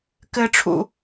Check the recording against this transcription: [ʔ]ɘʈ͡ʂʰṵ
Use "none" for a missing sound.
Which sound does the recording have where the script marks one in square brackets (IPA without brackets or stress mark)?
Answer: k